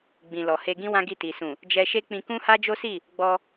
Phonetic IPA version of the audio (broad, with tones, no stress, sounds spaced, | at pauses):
ɡ͡b ĩ˨ l ɔ˨ h e˧ ɡ ĩ˦ w ã˦ ɡ i˦˨ t i˨ s ũ˨ | d͡ʒ ɛ˧ ʃ e˦ k͡p ĩ˧ k ũ˦ h a˦ d͡ʒ o˦ s i˦˨ | ɡ͡b ɔ˧